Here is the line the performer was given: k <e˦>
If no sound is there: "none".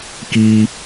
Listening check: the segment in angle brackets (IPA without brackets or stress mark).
i˦